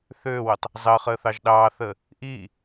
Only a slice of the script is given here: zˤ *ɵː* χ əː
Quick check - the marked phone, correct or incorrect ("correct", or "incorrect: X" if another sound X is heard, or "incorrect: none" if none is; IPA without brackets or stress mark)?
incorrect: əː